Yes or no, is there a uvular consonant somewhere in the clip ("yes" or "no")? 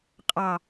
yes